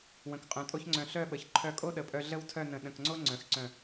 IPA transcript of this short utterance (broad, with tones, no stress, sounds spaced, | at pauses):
w ə̃˩˧ k qʼ œ̃˩˧ tʼ o˥ ç ŋ͡ǀ œ̃˧˩ ɬ œ˥˧ ɓ ə˩˧ ç ǃʰ œ˧ kʼ o˥ ɗ ə˩˧ pʼ œ˧ ɮ ə˥ w tʰ œ˥˧ n ə̃˧˩ ɗ ə̃˧˩ k ŋ͡ǀ o˥ ŋ͡ǀ œ̃˩˧ x ǀ œ̃˧˩